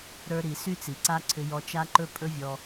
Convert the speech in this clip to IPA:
ɾə˞˧ɾi˨ sy˦t͡si˨ǀa˦ǀʰʏ˧ jɔ˧t͡ʃa˦ǃɵ˦ pʼɵ˦vʲɔ˧

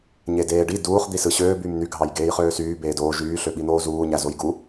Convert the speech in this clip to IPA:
ɲedeːɖi duːχ d̪isɯɕøː byːmn̪y ɡʱɑjɡeːjχøːsyː beːdoːʒ yː ɬøɓin̪oːzuː ɲæzojɡu

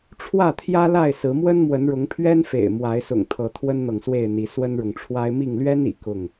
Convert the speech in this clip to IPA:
ʈ͡ʂʰwä˥˨t̪ʰjä˦la˥˨ɪ̯ sɹ̩˨˦mwə˦nmwə˨˦nɻʊ˨˦ŋ pʰɥɛ˦nfḛ˨˩ɪ̯ mwa˨˦ɪ̯sʊ̰˨˩ŋt̪ʰɤ˨˦ t̪ʰwə˦nn̪ɤ˨ŋswe˥˨ɪ̯n̪i˨˦ swə˦nɻʊ˨ŋʈ͡ʂʰwa˦ɪ̯ mi˥˨ŋ lɥɛ˦n ḭ˨˩kʊ˥˨ŋ

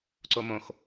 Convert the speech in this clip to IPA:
ǀomõx

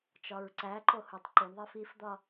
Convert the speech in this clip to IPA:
t͡ʃɒɹǀæǃo hutˤǃuɳðˤif ifd̪ɒ

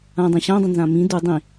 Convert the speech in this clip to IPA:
ãdˤĩ ɕãdˤə̃nzã mĩ du dˤĩ

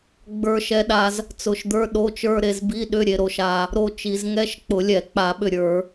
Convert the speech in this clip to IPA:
ɡ͡bə˞˧ʃɛ˧ɗa˧z | t͡sʊ˧˩ʃd̪ə˞˧˥˧ɗo˧˥˧t͡ʃə˞˧˥˧ ɾe˧zbi˧˥˧ɗʏ˧˥˧ ɾʲe˧ɾo˧ʃa˧ | ɾo˧t͡ʃi˧˩˧z ŋɛ˧˥˧ʃ k͡pʊ˧˩˧lʲɛ˧˩˧k͡pa˧˩˧ɓʏ˧˩ ɾʲə˞˧˩˧

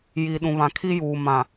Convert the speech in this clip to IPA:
ji˨ɗũ˨βã˨ kʰi˦juː˨ mã˨

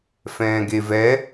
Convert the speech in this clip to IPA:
fɛ̃ːɡevɛ

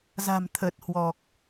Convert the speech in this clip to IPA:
za̤˨˩mt̪ʰə˨˩t̚hwɔ˨˩k̚

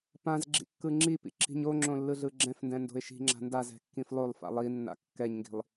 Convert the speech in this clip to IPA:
pãzɡ͡ǁḭ kːɯŋ͡ǁipḭ ǁi̤ɲoŋ͡ǁõ lːɯɮɯɡ͡ǁɛ̃fndɛ̃ ndo̤ɪ̯ʃi̤ŋ͡ǁa̤ ndazɛ̤ kːĩflˠolˠfa̰ lˠinːa̰ kːɛɲŋɡi̤lˠ

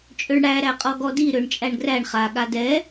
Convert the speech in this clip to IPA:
t͡ʃʼøɳɽæ ɾæqʼɔɡɔdi ɾøɳt͡ʃʼæɳɡræɳ χa ɠadɛ

